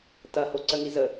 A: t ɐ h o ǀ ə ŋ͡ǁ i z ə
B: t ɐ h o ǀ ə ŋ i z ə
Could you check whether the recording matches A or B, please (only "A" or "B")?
B